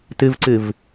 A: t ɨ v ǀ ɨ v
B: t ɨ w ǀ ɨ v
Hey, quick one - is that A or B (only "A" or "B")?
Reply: A